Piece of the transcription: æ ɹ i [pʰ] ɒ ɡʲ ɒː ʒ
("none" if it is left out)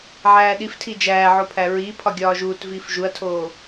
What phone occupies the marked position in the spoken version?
pʰ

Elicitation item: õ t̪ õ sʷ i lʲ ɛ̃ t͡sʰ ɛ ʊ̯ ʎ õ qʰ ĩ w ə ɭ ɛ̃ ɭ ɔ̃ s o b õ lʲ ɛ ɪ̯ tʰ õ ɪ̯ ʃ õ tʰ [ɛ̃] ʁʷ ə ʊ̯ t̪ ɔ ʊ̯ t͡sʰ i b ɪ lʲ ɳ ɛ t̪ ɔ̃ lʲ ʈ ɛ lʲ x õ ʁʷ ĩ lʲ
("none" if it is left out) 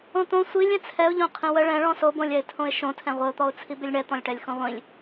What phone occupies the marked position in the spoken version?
ɛ̃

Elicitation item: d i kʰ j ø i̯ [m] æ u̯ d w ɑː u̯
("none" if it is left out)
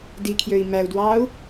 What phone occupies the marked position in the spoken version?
m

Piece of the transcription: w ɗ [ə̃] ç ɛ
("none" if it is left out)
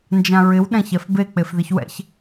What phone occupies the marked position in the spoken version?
ɛ̃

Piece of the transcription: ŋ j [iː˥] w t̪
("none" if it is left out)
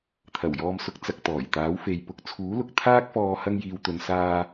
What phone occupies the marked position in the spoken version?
iː˨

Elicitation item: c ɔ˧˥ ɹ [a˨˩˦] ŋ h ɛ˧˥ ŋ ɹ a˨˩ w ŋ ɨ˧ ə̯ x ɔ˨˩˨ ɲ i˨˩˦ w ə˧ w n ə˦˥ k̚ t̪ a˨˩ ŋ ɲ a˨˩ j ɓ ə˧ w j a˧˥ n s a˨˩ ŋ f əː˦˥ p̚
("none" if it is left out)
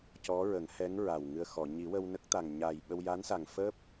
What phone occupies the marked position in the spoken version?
ə˨˩˦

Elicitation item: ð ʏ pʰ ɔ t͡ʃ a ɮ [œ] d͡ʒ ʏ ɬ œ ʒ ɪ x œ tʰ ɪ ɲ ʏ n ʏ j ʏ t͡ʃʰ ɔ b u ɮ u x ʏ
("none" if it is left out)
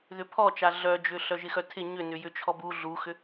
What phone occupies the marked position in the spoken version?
œ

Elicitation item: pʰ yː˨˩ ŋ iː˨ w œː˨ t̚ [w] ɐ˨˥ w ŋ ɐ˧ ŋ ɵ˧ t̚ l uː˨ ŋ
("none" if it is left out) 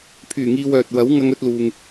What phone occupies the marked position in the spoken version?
w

